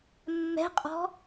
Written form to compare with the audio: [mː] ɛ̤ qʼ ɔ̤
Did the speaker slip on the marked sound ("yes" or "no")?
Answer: no